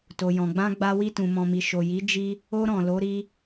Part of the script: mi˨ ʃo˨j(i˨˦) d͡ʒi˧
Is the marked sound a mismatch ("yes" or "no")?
no